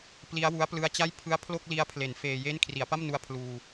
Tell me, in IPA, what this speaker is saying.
p l i˦˥ a̯ w u˦˥ a̯ p l ɯ˦˥ a̯ t͡ɕ a˥˩ j pʰ ɯ˦˥ a̯ pʰ l o˥˩ k̚ l i˦˥ a̯ pʰ l e˩˦ n f eː˧ j e˥˩ n kʰ r i˩˦ a̯ p a˥˩ m n u˧ a̯ pʰ l uː˧

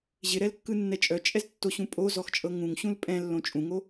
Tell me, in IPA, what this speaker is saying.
ʑ ɪ ɾ ɛ l kː ɯ nː ɛ t͡ʃʼ œ t͡ʃʼ ɛ z tː o ɕ ũ pʼ o z ɔ x t͡ʃʼ ɤ ŋ ũ ŋ ɕ ũ l pʼ ɛ̃ lː õ t͡ʃʼ ũ ŋ o

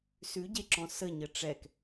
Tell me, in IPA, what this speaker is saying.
s ʉ ɟ e ǁ ɔ̃ s ə ɲ ə ʈ͡ʂ ɛ k

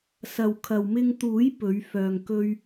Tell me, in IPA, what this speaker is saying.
s ɐ˨ w kʰ ɐ˨ w m ɪ˧ ŋ t̪ uː˨˥ j p ɵ˨˥ ɥ f œː˧ ŋ k ɵ˥ ɥ

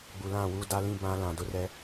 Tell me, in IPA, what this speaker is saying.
ɡ͡b u˨ l ã˦˨ w u˦ d a˦ l ĩ˦ b ã˦ l ã˨ d ʊ˦ r ɛ˦

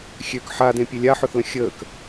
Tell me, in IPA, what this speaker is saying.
xʲ ø k ħ a d ẽ pʲ e lʲ a ħ ʊ θ l ə̃ xʲ əː k

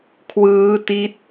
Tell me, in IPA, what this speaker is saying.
kʰ w ɯː˦˥ t i˦˥ t̚

